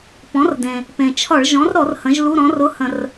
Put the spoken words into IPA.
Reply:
p ɔ̃˩˥ r d ẽ˩ | p ẽ˩ t͡ʃʰ ɒ˧˩˧ ɭ ʒ ɔ̃˩˥ r ɾ ɔ˧˩˧ r h ə̃˩˥ ʒ l u˧˥˧ ɾ ɔ̃˩˥ r ʊ˧˥˧ h ə̃˧˩˧ r

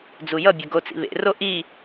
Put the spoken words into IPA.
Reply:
d͡z u j ʌ bʲ ʌ ɡ o t͡s ḭ β ḛ r o ʔ i

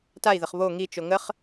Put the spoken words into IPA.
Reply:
t a i̯ ð ə χ β o ŋ i t͡ʃ o ŋ ə χ

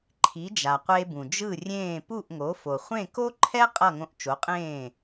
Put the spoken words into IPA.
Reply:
ǃʰ i˩˥ d͡ʒ a˩ qʷ eː˧ b ũ˩ d͡ʒ ɯ˥˩ rʲ ẽː˥˩ p u˥˩ ʔ ŋ o˩˥ f o˩ χʷ ẽ˥˩ k o˥ ǃʰ ɛ˥ qʼ ʌ˥˩ ŋ õ˧ ʔ t͡ʃ o˩˥ qʼ ẽː˥˩

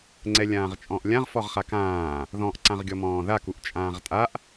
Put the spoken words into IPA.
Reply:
ŋ͡ǀ ɛ lʲ ãː ʁ t͡ʃʼ ɔ̃ ʔ lʲ ã ʁ f ɔ ʁ χ a k ãː | ð ɔ̃ ʔ ǀ ã ʁ ɡʲ ɔ m ɔ̃ː ð a k u ʔ t͡ʃʼ ãː ʁ tʼ a ʔ

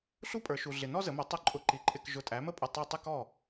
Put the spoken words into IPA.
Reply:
ɬ u˦ pʼ ə˞˩˧ ʃ u˩ ɮ ɪ˩ n ɔ˦ z ə˩˧ m ʊ˩˥ tˤ ʊ˧˩ ǃʼ ʊ˩˥ ǃ i˩ ǃʼ ɪ˧˩ k ʒ ʊ˧˩ tʼ æ˩˥ m ə˥˩ pʼ ə˧˩ tˤ u˧˩ tˤ ɪ˦ k ɔ˥˩

